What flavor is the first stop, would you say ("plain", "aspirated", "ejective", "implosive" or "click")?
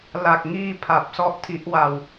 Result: plain